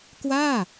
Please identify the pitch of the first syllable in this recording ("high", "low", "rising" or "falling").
falling